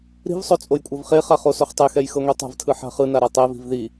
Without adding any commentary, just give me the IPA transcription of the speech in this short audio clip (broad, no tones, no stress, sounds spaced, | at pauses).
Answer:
ɾ i̤ v sˤ o t͡sʼ o j kʷʼ ɤ v χ e χ a χ o s o χ tˤ e x ɛ j x ɤ ŋʷ i tˤ a̤ v tʰ ɯ ħ a̤ χ ɯ n a ɾ a tˤ e v i̤ v ð i